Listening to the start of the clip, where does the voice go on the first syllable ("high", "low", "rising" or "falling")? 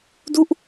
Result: falling